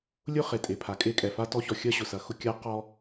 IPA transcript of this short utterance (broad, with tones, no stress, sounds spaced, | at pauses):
lʲ ʊ˦ χ e˨ tʼ e˨ pʰ a˨ kʼ e˦ kʼ ɛ˨ f a˦ t ɔ˦ ç ɔ˨ xʲ ɐ˦ ɕ ʊ˨ s ɐ˨ x ʊ˦ kʲ a˦ q ɔ˦